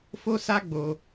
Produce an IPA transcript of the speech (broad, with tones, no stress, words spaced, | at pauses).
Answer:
fo˦sa˦ɡ͡bo˧